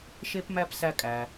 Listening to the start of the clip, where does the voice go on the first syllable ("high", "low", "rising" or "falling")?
high